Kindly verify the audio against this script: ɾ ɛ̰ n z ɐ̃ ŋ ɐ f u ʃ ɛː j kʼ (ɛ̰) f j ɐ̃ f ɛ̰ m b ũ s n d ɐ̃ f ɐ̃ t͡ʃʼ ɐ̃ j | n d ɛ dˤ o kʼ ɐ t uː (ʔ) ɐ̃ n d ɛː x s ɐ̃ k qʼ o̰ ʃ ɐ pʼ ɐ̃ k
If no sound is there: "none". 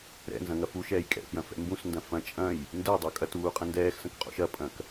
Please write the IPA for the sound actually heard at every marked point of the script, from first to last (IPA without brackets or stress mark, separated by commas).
ɛ̰, qʼ